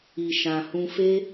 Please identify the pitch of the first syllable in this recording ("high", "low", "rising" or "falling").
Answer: low